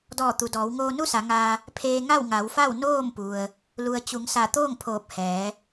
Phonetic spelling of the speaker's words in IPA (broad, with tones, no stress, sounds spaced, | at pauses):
d ɔː˧˩ t̪ u˩ d ɔː˩˧ w ŋ oː˧ n u˥˨ s a˩˧ ŋ aː˧ | pʰ eː˧ ŋ a˥˨ w ŋ a˩˧ w f a˥˨ w n oː˥˨ m p u˩ ə̯ | l u˩ ə̯ t͡ɕ u˩˧ ŋ s a˧˩ t̪ oː˥˨ ŋ pʰ oː˧˩ p̚ h ɛː˩˧